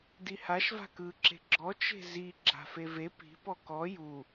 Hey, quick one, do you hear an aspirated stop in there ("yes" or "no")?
no